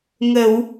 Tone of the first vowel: low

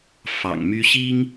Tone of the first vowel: low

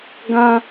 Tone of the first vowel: high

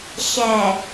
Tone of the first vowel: low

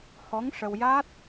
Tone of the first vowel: rising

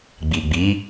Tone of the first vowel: low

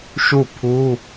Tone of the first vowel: falling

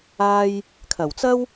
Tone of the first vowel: high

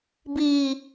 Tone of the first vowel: low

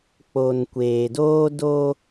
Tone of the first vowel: low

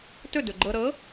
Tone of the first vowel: falling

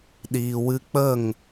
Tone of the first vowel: low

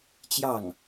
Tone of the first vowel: falling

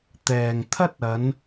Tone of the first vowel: low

